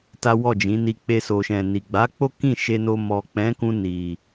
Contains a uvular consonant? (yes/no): no